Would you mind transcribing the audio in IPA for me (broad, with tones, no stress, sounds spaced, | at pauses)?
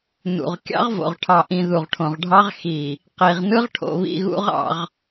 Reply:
n ṵ˨ ʁ kʲ ɑ̰˦ ʁ v o̰˨ ʁ ʈʰ ɑ˨ ʔ ĩ˨ ð u˨ ʁ ʈʰ õ˨ ʁ ɖʱ ɑ˦ ʁ x i˨ | q i˨ ʁ n ɯ˦ ʁ ʈʰ o̰˨ β ḭ˨ ɣ ṵ˦ ʁ ɑ̰˨ ʁ